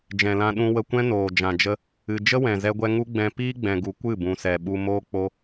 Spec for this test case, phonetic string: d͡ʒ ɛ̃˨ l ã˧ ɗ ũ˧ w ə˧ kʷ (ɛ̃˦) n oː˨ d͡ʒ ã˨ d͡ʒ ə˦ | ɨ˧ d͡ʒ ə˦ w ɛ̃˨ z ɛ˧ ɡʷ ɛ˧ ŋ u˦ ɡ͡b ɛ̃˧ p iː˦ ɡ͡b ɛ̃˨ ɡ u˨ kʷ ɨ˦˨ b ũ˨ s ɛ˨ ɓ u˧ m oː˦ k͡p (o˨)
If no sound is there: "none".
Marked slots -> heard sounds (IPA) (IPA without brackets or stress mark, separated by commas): ɛ̃˦, o˦